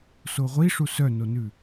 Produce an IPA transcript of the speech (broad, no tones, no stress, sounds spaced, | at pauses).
s o ʁʷ i ʂ u s œ n o n ʉ